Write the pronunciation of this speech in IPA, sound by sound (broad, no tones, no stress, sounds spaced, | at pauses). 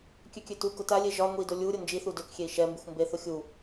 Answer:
kʲ ø kʲ ø t u k ʊ t a lʲ e ʒ ɒ ŋʷ i d o lʲ u ɾʲ ʊ n d͡ʒ i θ u d ø k xʲ e i̯ ʃ ɛ m b i xʷ m b e θ ʊ xʲ u